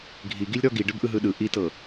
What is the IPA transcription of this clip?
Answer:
ɡʱ i ɡ i lʲ ɾ ɔ ɡ i ɖ ɯ b ʔ ɯ ɦ ɯ ɗ ɯ ʔ i t ɤ

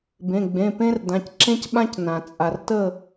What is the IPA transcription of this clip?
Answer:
b ẽ˩˧˩ ɡ͡b ẽ˩˧˩ p ẽ˥ r d ã˩˧˩ c ǁ ẽ˥ c ɓ ã˥ c n ã˩ t͡sʼ a˩ r t ə˥˨

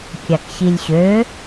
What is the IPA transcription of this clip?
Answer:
kʲ a k ɕ i lʲ ɕ ø

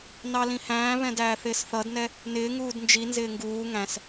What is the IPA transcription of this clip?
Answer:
n ɑ l ĩ h æ̃ː β ɛ̃ d æː θ ɪː s θ ʌ d n ɛ | n ɪː ŋ uː d n d͡ʒ i n z ɪː ŋ ɡ uː ŋ æ̃ s

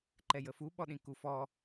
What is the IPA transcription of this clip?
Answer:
ǃ ɛ j ə f u ɓ ɔ ɗ ĩ k u f ɔ

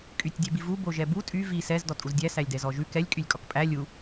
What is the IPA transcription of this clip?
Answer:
kʼ y tʲ dʲ ɛ b i v u b o ʒ ɛ b u tʼ y v i s ɛ z d ɔ tʼ u z dʲ æ s æ lʲ d ɛ z ɔ ʒ ʉ k ɛ lʲ kʼ y lʲ kʼ ɔ k pʼ æ lʲ u

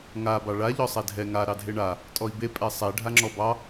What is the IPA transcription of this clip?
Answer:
ŋ a b ɑ ɭ a ʎ ɔ sˤ ɛ dʱ ɛ ŋ a ɾ ɑ dʱ e ɳ a | tʼ ɔ i̯ b e pʼ ɛ sˤ ɛ ɖʱ a ŋ͡ǁ ɔ b ɑ

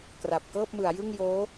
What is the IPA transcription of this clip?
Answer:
k r a˨˩ p̚ k ɤː˥˩ p̚ m ɯ˩˦ a̯ j ɯ˥˩ ŋ j oː˦˥

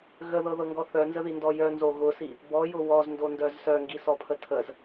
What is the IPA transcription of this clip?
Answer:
ɣ ə ð ɤ ð ɤ ŋ ɡ ɔ θ œ n z ə ð i n d ɔ j œ n z o ɣ ʊ s i | b ɔ j ʊ w ɔ z n d o n d œ z s œ ŋ ɡ i s ɔ pʰ ə tʰ ə z

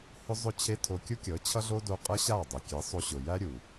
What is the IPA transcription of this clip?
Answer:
h ʊ˦ zˤ ʊ˦˨ t͡ɕʰ e˦ tʰ o˧ kʲ u˦ kʲ ɤ˨˦ t͡ɕʰ ʌ˦ ɮ o˦ d o˧ qʼ ɤ˦ ɕ a˦˨ dˤ e˨ kʲ e˨˦ sˤ o˧ ɕ ʊ˨ j æ˦ ɾʲ u˨

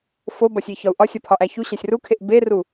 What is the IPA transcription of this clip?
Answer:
f o b ɒ sʲ i ç ɒ u̯ ʔ ɒ sʲ ɒ pʰ ɒ ʔ æ ç u ɕ æ sʲ r u kʰ e ʔ b e r u

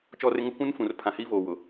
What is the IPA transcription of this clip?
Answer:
t͡ʃ ɔ˦ r ɪ˦ ŋ ʊ˦ kʷ ũ˦ n f ũ˨ r pʰ ã˨ h iː˦ v oː˨ w ʊ˨

